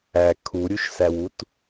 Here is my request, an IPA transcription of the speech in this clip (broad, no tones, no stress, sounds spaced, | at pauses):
æ kʰ u ɾʲ u ʃ s æ w u t